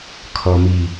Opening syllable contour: low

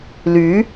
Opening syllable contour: rising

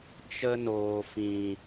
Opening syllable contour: high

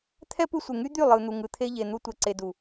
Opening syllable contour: high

